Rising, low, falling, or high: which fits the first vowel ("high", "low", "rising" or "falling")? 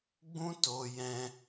high